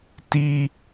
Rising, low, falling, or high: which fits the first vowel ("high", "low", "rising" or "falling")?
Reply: high